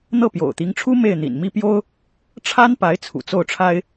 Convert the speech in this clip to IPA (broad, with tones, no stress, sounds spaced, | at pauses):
n̪ ɤ˥˩ p j o̰˨˩ ʊ̯ t̪ i˧˥ ŋ ʈ͡ʂʰ u˥ m e˥˩ ɪ̯ n̪ ḭ˨˩ n m i˥ p j o˥ ʊ̯ | ʈ͡ʂʰ a˥ n p a˧˥ ɪ̯ t͡sʰ ṵ˨˩ t͡s o˥˩ ʊ̯ ʈ͡ʂʰ a˥ ɪ̯